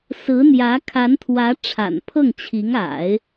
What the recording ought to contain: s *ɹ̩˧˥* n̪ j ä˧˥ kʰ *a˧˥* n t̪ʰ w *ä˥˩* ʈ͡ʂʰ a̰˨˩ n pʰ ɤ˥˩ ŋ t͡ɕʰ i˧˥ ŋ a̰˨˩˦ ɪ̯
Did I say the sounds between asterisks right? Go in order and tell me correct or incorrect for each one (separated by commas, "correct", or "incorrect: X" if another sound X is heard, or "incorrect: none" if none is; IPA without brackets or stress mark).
correct, correct, incorrect: ä˧˥